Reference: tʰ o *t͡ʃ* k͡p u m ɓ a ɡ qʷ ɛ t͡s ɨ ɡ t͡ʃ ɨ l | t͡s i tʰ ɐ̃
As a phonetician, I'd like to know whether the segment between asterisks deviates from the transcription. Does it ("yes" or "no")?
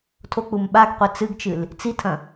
yes